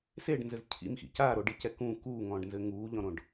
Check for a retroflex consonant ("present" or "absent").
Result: present